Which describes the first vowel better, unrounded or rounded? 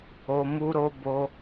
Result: rounded